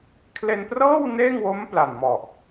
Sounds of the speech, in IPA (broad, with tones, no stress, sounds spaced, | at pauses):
kʰ l e˧ n p r ɤː˥˩ w n eː˥˩ ŋ w o˦˥ m p l a˨˩ n m ɔ˨˩ ʔ